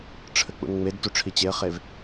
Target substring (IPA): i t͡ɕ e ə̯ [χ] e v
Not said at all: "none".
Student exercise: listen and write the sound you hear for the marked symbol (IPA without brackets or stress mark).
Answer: χ